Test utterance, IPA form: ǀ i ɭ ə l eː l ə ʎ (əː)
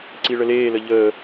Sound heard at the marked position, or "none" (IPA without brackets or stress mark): əː